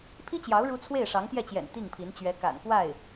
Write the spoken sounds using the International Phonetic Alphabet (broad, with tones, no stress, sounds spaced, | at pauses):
pʰ i˥ t͡ɕ j ɑ˧˥ ʊ̯ ɻ u˥ t͡sʰ w e˥˩ ɪ̯ ʂ ɑ˧˥ ŋ t̪ j ɛ˥˩ t͡ɕ j ɛ̰˨˩ n t̪ i˥˩ ŋ pʰ i˧˥ n t͡ɕ ɥ ɛ˧˥ k a̰˨˩ n k w a˥˩ ɪ̯